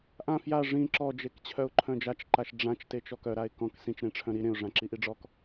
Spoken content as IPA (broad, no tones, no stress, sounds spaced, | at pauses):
ʔ ã f j a ʐ ĩ ǁ ɔ d͡ʒ e k t͡ɕʰ œ ʊ̯ ǃʰ œ̃ d͡ʒ a t͡ʃ ǃ a ʃ ɖ͡ʐ ã t͡ʃ t e t͡ʃ ɔ k œ ɾ a ɪ̯ k ɔ̃ k s ĩ t͡ʃ ɾ ẽ ʈ͡ʂʰ œ̃ ɾ i ɾ ẽ ʊ̯ ʐ ã ǁ i ʔ i ɖ͡ʐ ɔ k